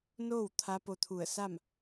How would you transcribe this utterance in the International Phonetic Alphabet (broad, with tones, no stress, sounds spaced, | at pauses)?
n oː˥˨ w t̪ʰ a˧˥ p o˧ t̪ʰ u˧˩ ə̯ s a˥˨ m